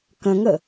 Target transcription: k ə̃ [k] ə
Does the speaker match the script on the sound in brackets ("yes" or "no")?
no